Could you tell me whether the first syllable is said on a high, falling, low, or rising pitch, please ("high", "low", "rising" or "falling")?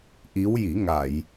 rising